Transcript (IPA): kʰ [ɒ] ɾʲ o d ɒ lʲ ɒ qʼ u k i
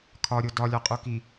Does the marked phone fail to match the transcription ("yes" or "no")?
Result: no